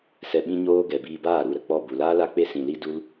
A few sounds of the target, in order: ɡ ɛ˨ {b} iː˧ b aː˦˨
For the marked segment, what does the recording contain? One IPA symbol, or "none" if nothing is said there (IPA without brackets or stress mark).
b